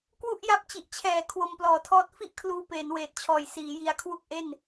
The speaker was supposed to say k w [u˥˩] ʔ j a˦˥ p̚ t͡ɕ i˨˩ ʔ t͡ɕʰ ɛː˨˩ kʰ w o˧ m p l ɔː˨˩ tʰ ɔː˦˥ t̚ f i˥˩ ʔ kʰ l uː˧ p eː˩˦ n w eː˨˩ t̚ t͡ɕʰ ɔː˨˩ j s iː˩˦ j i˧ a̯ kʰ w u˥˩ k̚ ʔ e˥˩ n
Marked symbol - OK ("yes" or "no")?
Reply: yes